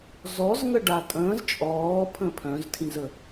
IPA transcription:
z ɔ z ŋ ə ɖ a tʼ ə̃ː z t͡ʃʼ ɔː pʰ ə̃ pʰ œ̃ z tʰ ĩ z ə

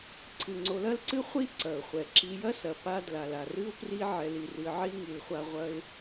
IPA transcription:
ǀʰ ɨ˩ ŋ͡ǀ o˨ l ɐ˥ l ǀ ɨ˥ χʷ i˥ ǀ ɐ˩ ʊ̯ χʷ ɛ˩ ǁ i˨ j ɐ˥ s ɐ˩ p a˦ d l a˩ l a˩ r ɨ˥ ʊ̯ p r i˥ ʕ ɛ˨ l i˨ r ɨ˨ ʕ i˦ ŋ i˨ l χʷ a˦ ʁʷ ɐ˦ ɪ̯

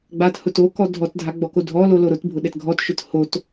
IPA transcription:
ɡ͡b a t h ʊ t o k ɔ dʱ ɔ t dʱ a ɡ͡b ɔ k o dʱ ɔ l o l o ɾ ʊ t bʱ ʊ ɗ ɛ t ɡʱ ɔ t ʃ ʊ t h o t

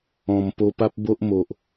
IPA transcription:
ɔ̃˨˩ m p o˧ p a˦ p̚ b o˦ ʔ m o˨ ʔ

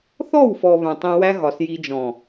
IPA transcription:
θ ɔ˦˨ w f ɔ˨ β œ̃˨ tˤ ĩ˧ w æ˦ ɣ ɒ˨ s j i˧ d͡ʒ ɔ̃˨

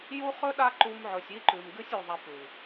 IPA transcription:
j u˦ χ ɵ˦ ɗ a˦ ǃ u˧ m ʕ ɵ˨ sʲ i˦ ǃ ʉ˨ m ɡ ɨ˦ sʲ u˨ ðˤ a˧ p ʉ˨

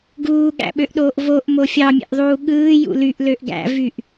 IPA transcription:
ɡ uː ɠ æ̰ ɓ ø ʔ ɗ oː ʔ v o ʔ m o fʲ ɑ mʲ ḛ ʔ ðˤ uː ɠ ɯː j ṵ l y ʔ l ø ʔ ɡ æ̰ v y ʔ

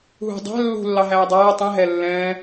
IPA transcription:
ɦ ṳ dˤ æ̤ lː ṳ lː ɑ ɦ æː dˤ æː tˤ ĩ ɦ ɛ lː ɛ̃ː

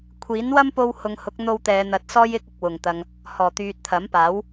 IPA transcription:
kʷʰ iː˨˥ n w ɐ˥ m p o˧ w h ʊ˨˧ ŋ h ʊ˨˥ k̚ n̪ o˧ w t̪ ɛː˨˧ n̪ ɐ˨˥ t̚ s ɔː˥ j ɪ˥ k̚ ɪ˨ k̚ w ʊ˨˩ ŋ t̪ ɐ˨ ŋ | h ɔː˨˩ t̪ yː˨ t̚ t̪ʰ ɐ˨˥ m p aː˨˥ w

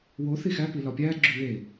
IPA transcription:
w o θ i x æ p i l ɒ pʲ æ ɡ͡ǁ u w e

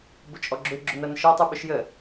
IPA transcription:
b ʊ t͡ʃʼ ɔ ɡ͡ǁ ʏ ɡ͡ǁ ʊ n ɐ n ʃ ɔ tˤ u ɓ ʊ ʃ j ə

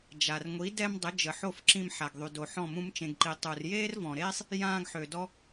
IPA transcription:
d͡ʒ a˨ r ŋʷ i˨˦ d ɛ˧ m dˤ ə˨˦ d͡ʒ ə˨ ħ o˦˨ f ǁ ĩ˧ m ħ a˨ ɡ ðˤ y˨ d o˨ ħ ɔ̃˦˨ m ũ˦ m t͡ʃ ẽ˧ ɡ ǃ i˧ tˤ u˨ r j eː˦ r v ɔ̃˨ ɾ eː˦ sˤ | j ãː˧ ɡ ħ ø˨ d ɔ˦

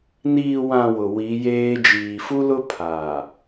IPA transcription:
n iː˨ w ã˨ w ʊ˨ w i˨˦ j eː˦ d͡ʒ iː˨ f u˦ l ʊ˦ pʰ aː˨

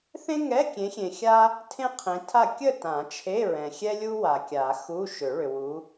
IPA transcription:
θ ẽ˥ ŋ ɛ˧˥˧ kʲ ẽ˨˦ xʲ ẽ˨ xʲ a˥ | tʰ ẽ˥ qʰ ẽ˨˦ tʰ a˥˨ kʲ ə˥˨ t ã˨˩˦ t͡ʃʰ e˧˥˧ ɹ ɛ̃˨ xʲ ɛ˥ lʲ u˥ w a˨ kʲ a˨˩˦ x u˧˥˧ ʃ ʏ˨˩˦ ɭ ʏ˨ w u˨˦

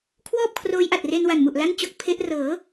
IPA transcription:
kʰ w ɔː˥˩ p̚ kʰ r oː˦˥ j ʔ a˨˩ t̚ r e˧ n w a˨˩ n m u˨˩ ʔ l a˥˩ n t͡ɕ o˦˥ k̚ pʰ e˦˥ ʔ r ɤː˩˦

